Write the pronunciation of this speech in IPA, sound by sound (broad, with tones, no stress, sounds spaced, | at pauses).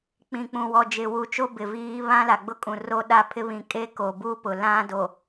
k͡p ĩ˨ k͡p ũ˨ w ɔ˨ d͡ʒ ɪ˨ w u˨ t͡ʃ o˦ b ɪ˨ v iː˦ β ã˦ l a˨ ɡ͡b ʊ˦ kʼ ũ˨ r o˦ ɗ a˦ pʰ ɪ˦ β ĩ˨ kʼ e˦ k o˨ b u˦ p ʊ˨ l ã˦ d o˨